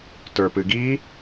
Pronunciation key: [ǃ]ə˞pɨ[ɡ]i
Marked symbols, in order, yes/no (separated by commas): no, yes